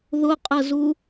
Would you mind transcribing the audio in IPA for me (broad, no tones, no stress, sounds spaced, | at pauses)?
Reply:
ð ʊ qʼ ə z u